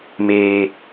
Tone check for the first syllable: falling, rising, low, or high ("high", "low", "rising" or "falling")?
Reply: low